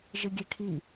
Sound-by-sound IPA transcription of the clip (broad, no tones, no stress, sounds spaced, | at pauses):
ʒ ɪ ɡʲ ɛ kʰ i